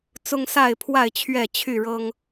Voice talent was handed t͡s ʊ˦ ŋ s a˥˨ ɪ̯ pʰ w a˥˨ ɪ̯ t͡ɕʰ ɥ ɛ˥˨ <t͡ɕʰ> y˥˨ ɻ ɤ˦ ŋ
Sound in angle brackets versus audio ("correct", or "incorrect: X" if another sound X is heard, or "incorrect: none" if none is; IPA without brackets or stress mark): correct